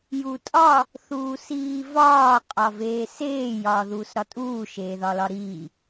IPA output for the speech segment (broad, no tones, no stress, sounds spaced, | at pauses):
j u tʼ ɒ | θ uː s iː v ɒː qʼ ɒ v eː s eː j ɒː ð uː s ɾ ɒ tʼ uː ʃ eː ð ɒ l ɒ ɾ iː